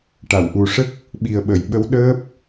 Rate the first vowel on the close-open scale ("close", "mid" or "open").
open